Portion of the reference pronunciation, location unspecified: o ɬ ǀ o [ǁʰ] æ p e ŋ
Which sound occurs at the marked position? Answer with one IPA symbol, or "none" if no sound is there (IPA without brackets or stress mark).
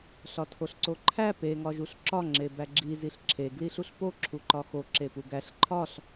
ǃʰ